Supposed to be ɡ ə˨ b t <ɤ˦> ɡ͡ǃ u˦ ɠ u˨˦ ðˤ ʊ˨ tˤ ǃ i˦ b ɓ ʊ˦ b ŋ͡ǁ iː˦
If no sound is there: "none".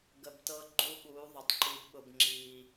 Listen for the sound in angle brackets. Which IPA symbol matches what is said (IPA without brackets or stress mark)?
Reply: ɤ˦